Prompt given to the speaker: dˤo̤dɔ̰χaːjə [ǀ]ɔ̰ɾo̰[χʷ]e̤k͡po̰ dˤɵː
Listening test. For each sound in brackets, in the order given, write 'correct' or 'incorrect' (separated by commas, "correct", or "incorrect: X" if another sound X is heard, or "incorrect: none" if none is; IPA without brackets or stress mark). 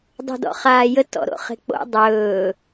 incorrect: t, incorrect: χ